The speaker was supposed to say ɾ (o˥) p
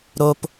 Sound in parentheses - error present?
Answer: no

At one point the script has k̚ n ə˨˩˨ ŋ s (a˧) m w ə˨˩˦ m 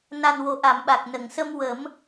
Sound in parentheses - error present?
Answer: yes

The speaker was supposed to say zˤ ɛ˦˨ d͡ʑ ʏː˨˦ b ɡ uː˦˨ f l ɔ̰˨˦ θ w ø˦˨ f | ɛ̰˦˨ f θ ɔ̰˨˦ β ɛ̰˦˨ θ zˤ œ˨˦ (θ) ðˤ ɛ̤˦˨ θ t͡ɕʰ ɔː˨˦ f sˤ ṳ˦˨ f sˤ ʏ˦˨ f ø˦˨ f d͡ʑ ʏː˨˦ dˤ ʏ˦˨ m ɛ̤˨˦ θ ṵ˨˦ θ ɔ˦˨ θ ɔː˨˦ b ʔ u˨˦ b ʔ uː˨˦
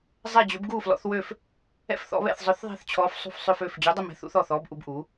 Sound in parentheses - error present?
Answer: no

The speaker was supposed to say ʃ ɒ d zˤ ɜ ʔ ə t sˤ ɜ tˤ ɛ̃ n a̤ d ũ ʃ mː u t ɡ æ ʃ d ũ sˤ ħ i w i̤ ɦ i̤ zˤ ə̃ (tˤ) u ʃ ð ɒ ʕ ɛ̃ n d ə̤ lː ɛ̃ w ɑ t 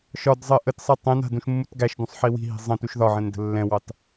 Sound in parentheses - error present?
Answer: yes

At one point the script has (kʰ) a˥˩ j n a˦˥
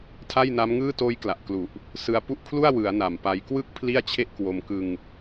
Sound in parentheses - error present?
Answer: yes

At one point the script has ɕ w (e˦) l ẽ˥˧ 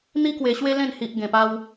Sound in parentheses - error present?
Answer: no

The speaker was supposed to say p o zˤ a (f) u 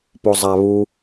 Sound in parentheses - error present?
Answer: yes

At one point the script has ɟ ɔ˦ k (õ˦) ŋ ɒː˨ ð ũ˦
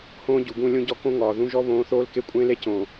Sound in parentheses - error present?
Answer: no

